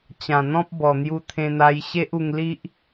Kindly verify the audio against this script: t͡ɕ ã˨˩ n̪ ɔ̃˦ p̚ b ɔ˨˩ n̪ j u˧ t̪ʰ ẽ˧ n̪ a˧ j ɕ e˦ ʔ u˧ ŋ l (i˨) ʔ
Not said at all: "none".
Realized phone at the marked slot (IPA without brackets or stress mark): i˦